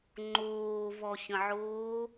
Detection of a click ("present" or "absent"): present